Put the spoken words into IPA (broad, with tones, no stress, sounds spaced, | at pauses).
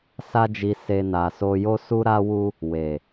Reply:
s a˦ d͡ʒ i˧ s e˦ n a˧ s o˧ j o˦ s u˦ ɾ a˦ w u˦ | w e˨